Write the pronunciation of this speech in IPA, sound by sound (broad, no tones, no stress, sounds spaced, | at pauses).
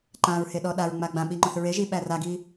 ǃ ã ɹ h e ɗ ɔ ɗ a ɹ ŋ͡m a ɡ͡b ã ɓ i ŋ͡ǃ ɔ̃ θ ɹ e ʒ i ɓ æ r a ɡ i